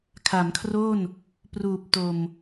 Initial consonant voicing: voiceless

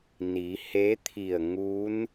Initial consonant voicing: voiced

